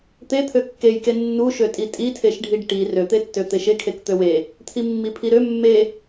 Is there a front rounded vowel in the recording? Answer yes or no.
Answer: yes